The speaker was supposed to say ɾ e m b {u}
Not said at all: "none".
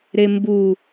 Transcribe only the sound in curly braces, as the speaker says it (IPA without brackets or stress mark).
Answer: u